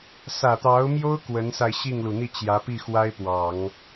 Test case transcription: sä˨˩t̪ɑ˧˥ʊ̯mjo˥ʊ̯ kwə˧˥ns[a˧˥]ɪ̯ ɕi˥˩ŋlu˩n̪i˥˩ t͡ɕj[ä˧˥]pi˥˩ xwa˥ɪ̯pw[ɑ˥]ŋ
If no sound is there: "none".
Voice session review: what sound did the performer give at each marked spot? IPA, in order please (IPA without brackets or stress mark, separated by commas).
a˧, ä˧˥, ɑ˨˩˦